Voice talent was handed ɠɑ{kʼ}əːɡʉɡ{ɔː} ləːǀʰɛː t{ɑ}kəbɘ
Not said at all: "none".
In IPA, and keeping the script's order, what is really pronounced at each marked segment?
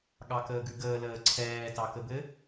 k, əː, ɑ

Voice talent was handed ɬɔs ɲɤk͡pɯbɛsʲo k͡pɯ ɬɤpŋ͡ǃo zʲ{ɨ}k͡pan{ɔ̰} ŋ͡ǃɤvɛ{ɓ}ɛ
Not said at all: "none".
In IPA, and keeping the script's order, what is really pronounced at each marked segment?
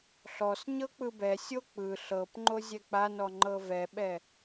ɛ, ɔ, ɓ

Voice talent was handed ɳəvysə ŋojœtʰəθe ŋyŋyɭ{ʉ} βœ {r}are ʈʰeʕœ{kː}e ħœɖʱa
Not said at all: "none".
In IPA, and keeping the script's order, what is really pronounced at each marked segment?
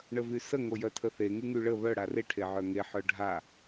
ə, ɽ, ŋ

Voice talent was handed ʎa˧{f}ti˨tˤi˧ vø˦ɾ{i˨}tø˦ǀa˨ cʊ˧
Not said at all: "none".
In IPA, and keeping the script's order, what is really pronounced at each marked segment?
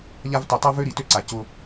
v, i˨

